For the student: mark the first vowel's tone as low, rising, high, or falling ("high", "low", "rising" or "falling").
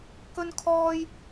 high